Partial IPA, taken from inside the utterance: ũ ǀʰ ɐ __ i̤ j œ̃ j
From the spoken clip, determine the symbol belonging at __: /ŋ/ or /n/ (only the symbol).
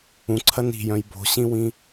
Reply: n